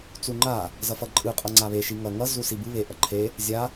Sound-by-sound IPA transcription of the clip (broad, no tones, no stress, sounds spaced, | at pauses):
t͡s u ŋ͡ǃ a | z ʌ f ʌ ǃʼ ɯ qʼ ʌ ŋ͡ǀ a β e ʃ i ŋ ʌ ŋ ʌ z u s i b ɯ β e ʔ ʌ ǃʰ e | zʲ a